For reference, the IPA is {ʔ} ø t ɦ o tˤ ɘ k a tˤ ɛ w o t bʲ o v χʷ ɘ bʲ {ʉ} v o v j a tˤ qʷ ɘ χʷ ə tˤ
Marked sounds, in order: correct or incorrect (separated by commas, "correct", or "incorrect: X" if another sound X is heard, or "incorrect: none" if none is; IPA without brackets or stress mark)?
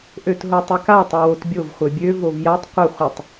correct, incorrect: ø